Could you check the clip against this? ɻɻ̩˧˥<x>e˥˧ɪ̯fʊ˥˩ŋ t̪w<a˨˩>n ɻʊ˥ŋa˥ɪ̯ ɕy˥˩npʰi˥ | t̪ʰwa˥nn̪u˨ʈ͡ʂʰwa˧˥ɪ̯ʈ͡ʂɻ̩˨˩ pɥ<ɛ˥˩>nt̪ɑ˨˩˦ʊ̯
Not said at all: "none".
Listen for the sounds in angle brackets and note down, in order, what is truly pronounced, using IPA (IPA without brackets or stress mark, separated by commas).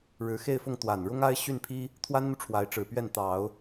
x, a˨˩, ɛ˥˩